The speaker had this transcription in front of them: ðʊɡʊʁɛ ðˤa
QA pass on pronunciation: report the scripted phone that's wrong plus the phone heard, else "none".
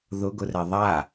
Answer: ʁ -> r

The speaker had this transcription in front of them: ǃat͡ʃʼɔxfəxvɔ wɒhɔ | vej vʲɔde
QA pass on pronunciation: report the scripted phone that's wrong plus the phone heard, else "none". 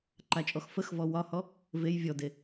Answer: none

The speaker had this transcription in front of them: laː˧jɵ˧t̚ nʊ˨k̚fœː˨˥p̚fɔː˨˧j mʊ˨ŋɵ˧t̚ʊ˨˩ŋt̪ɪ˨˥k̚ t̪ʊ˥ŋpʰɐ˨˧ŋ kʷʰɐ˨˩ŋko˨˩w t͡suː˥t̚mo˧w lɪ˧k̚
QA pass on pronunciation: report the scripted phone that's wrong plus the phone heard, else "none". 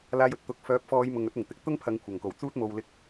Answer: n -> t̪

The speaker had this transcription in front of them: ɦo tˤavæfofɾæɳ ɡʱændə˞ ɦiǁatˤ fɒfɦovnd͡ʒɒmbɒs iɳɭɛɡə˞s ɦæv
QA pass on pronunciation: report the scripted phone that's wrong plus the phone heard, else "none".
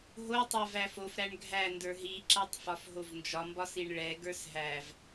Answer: none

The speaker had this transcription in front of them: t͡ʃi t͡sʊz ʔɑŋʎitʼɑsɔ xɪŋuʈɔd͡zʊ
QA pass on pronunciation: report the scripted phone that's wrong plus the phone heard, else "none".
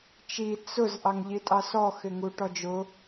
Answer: d͡z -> d͡ʒ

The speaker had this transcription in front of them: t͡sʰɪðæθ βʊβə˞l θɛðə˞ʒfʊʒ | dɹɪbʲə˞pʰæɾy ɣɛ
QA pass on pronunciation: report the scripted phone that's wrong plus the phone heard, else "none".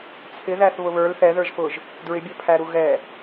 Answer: y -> u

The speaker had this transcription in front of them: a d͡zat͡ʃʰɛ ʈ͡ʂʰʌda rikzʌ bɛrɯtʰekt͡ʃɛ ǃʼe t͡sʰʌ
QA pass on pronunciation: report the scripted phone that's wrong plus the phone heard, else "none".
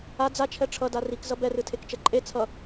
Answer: none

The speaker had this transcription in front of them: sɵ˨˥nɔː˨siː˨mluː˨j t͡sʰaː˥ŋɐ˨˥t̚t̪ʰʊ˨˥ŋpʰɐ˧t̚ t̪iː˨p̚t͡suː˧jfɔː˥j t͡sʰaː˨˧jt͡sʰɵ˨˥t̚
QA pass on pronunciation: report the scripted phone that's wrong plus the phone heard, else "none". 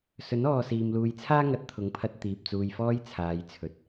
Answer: none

